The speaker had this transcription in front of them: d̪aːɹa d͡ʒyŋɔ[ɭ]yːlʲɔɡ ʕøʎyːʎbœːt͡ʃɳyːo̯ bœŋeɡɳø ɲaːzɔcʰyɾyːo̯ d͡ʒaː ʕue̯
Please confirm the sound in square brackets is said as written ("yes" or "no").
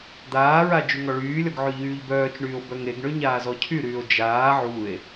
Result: yes